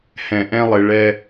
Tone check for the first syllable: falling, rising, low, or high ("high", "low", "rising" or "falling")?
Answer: low